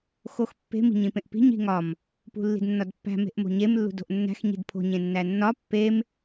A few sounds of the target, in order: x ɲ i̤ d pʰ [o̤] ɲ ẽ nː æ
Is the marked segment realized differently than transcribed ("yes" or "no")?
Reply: no